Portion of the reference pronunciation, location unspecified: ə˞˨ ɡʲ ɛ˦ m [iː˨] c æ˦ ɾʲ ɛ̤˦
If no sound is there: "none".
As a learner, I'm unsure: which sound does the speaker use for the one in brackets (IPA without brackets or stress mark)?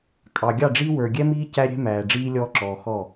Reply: iː˦